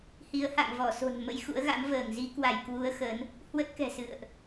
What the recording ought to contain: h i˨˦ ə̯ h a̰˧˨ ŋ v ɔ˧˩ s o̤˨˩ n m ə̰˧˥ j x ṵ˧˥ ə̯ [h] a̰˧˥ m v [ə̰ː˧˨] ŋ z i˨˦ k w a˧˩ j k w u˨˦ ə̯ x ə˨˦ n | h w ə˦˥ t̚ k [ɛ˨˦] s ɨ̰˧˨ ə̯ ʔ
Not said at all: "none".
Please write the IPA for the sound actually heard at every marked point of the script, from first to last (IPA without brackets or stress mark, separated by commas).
ɣ, əː˧˩, ɛ̤˨˩